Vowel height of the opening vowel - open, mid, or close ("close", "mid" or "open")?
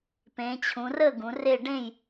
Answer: mid